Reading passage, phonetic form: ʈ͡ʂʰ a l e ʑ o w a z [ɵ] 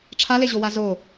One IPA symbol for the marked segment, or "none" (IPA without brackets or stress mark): o